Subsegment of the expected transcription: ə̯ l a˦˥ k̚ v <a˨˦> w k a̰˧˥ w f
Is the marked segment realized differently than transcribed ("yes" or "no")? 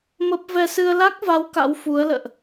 no